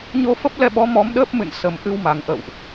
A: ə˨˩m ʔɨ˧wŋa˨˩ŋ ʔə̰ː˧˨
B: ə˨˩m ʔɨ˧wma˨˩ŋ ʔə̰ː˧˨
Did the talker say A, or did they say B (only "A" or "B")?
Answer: B